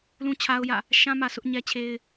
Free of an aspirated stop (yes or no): no